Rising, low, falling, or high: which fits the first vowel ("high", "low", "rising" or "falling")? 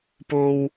high